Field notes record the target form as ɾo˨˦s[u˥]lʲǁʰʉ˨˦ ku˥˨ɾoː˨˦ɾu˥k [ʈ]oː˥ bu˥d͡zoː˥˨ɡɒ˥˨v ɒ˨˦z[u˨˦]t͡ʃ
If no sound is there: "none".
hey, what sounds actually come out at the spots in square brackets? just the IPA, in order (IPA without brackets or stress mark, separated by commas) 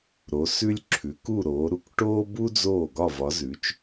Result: ʉ˥, ʈ, ʉ˨˦